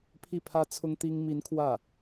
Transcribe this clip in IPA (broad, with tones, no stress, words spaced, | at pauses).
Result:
pʰi˥˩pʰä˥ t͡sʰʊ˥ŋ t̪i˥ŋ mi˧˥n kʰwä˥˩